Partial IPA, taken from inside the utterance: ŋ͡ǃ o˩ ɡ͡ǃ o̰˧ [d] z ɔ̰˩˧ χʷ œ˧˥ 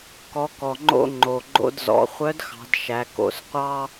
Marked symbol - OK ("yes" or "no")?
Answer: yes